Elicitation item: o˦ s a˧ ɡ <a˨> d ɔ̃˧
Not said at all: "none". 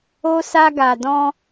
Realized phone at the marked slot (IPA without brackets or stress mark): a˨